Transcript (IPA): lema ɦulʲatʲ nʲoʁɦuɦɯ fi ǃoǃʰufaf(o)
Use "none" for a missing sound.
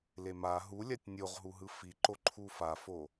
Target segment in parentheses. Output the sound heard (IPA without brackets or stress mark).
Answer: o